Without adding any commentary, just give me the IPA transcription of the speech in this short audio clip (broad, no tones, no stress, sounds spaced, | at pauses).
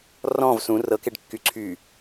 r ɔ̃ v s ũ r ɤ k e ɖ kː y ǀʰ y